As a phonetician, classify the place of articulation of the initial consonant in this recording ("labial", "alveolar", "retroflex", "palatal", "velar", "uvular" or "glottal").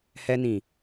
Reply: glottal